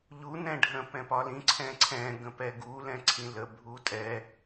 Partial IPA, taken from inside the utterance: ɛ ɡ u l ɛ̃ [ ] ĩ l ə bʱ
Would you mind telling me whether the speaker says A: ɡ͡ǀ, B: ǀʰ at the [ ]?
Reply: B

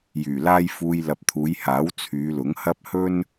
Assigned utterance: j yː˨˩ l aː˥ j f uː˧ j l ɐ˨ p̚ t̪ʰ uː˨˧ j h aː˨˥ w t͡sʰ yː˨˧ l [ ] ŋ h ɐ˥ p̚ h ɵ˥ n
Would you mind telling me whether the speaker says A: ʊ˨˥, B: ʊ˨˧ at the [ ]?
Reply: A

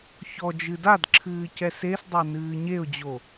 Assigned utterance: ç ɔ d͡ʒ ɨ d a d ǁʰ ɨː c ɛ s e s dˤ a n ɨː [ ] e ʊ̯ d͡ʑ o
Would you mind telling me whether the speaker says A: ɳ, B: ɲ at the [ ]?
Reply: B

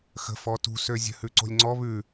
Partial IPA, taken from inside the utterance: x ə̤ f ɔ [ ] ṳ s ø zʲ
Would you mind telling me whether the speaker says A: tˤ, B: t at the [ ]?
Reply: B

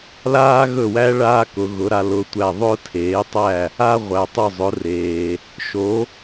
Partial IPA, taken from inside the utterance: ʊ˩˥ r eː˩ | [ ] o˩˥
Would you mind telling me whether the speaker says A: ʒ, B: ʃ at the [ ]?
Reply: B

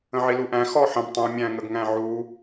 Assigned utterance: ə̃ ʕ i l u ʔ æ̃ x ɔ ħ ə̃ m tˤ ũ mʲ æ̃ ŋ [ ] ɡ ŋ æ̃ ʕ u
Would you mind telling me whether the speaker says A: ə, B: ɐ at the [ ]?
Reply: A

